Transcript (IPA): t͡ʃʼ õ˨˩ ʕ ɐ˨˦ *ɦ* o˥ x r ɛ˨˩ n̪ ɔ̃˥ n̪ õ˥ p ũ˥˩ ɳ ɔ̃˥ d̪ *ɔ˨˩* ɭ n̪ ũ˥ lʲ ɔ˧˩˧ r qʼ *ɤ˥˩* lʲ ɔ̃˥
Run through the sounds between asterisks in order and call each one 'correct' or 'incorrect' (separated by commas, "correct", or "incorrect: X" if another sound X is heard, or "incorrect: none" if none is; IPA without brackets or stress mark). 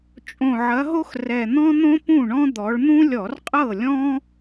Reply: correct, incorrect: ɔ˨˦, correct